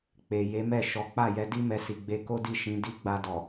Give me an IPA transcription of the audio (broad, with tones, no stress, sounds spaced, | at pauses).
k͡p e˨ j e˨˦ m ɛ˦˨ ʃ ɔ˨˦ k͡p a˦˨ j ɛ˧ d i˦ m ɛ˧ s i˨ ɡ͡b e˧ k o˦ d i˦˨ ʃ ĩ˨˦ d i˦ ɡ͡b a˧ d ɔ˨